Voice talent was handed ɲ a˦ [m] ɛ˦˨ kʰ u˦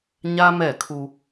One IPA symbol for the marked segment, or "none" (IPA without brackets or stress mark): m